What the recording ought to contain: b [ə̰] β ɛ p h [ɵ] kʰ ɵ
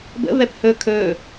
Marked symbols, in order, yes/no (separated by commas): yes, yes